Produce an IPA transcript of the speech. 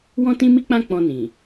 wɔ̃˦tĩ˦mi˦k͡pã˦ k͡pɔ̃˧nĩ˨

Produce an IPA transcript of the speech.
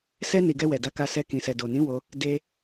sɛ˧ni˨ ɡɛ˧wɛ˨da˨˦ka˧ sɛ˧ kĩ˨sɛ˨do˨nĩ˨˦ wo˧ | de˧

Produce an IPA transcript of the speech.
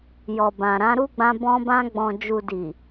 jɔ˨bã˨ɾã˨˦ ɾu˦ɡ͡bã˧ bɔ̃˧bã˧ɡ͡bɔ̃˨ d͡ʒu˨ di˨

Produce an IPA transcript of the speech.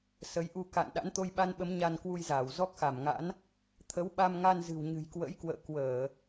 sə˨˦jʔu˧ ka̰˧˨n ɗa̰˧˥nt̪o˧jɓa˧nɓə˨˦m ɲa˧nkwu˧jzaː˧˩w zɔ˦˥k̚xa˧˩mŋa̰˧˥n | t̪ʰə˨˦wɓa˧mŋa˧n zɨ̤˨˩wɲɨ̤˨˩jkwə̰˧˥jkwə̰ː˧˨ kwəː˧˩˨

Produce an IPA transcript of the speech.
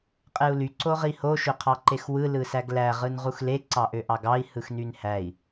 qʼeu̯ly ǀoʁiho ʃøqʰɑǃexwɯ lɯsæɡlæ ʁɯnʁuxle ǀɑʔøʔɑɡɑi̯ hɯxnynhæi̯

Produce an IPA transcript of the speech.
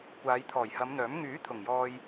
kʷaː˨˧jt̪ʰɔː˨˩jhɐ˨˧mn̪œː˨˥m ŋyː˨˥ t̪ʰʊ˨˩ŋjɔː˧j

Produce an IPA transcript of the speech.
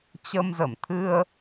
t͡ɕə˧mzə˧˩m t̪ʰɨ˧ə̯

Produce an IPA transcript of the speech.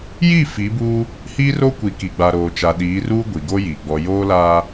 ji˦˨ fi˨˦buː˦ | hiː˦ ro˦kʷi˨ ki˨ɡ͡ba˨ɾoː˨t͡ʃa˨ ɗiː˨˦ruː˦ ɡʷi˨ɡo˦ji˨ ɡ͡bɔ˨ joː˦laː˦

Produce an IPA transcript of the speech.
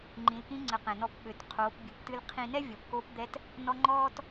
ŋ͡ǃĩ˩˧lkĩ˧˥ŋ͡ǀə˩˧ qɛ̃˩nɔ˧p ɓø˩˧t qʰoː˩˧pbʲɨ˩˧p tɨ˧lqʰĩ˧nɛ˥ vʲʌ˩˧pkoː˧˥pd̪ɛ˧˥t | nɔ˥ ŋ͡ǃɔː˥t

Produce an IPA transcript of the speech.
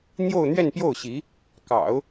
n̪jo˥˧ʊ̯n̪ɥɛ˥˧npjo˥˩ʊ̯ɕi˧˥ | kɑ̰˨˩˦ʊ̯

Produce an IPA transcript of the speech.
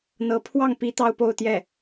n̪ɤ˧˥ pʰwɑ˥˩ŋpi˧˥ t̪ɑ˥ʊ̯po˥˧ʊ̯t̪jɛ˥˩

